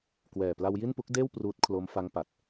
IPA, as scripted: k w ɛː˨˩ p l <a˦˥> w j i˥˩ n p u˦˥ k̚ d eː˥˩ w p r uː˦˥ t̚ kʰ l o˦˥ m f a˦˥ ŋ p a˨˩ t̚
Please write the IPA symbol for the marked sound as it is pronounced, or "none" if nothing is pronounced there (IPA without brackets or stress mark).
a˧